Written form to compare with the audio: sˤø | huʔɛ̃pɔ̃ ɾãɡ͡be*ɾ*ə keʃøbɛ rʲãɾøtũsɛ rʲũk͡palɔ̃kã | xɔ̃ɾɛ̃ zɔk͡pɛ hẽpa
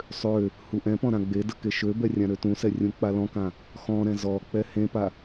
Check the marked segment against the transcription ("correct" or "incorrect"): incorrect